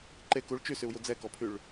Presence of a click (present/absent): present